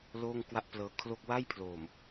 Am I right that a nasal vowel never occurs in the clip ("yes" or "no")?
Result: yes